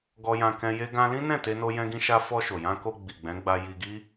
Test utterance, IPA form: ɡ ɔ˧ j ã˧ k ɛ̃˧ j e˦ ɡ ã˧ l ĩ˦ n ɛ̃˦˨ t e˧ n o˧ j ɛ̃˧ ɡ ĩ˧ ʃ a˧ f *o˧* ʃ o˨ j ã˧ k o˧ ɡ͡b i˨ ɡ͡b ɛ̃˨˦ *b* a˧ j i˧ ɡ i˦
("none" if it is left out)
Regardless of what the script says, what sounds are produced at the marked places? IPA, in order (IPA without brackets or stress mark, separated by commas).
ɔ˧, ɡ͡b